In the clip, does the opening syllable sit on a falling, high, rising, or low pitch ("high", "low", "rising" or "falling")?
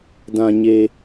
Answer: low